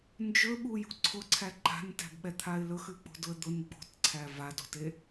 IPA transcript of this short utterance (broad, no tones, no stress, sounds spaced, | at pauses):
n d͡ʒ ɵ ɓ u j ṳ ǀʰ ʊ ǀʰ æ ǃ a̤ n t æ̤ b ɓ ɛ t̪ʰ a ɪ̯ l ɵ x ʉ k͡p o̤ d ʊ ə̯ d̪ ʊ n ɡ͡b o̤ t ǀʰ æ v a d o̤ t e